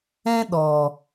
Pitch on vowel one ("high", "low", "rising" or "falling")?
high